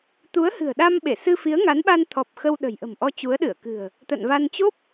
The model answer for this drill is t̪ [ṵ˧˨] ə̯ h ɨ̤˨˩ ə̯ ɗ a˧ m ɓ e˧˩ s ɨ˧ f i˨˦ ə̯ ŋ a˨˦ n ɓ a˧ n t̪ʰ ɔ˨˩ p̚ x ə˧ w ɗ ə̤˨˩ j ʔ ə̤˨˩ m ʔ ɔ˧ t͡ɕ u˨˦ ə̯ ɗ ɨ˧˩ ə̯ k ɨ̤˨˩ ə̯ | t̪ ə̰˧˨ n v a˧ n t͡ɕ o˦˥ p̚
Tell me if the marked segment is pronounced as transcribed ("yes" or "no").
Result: no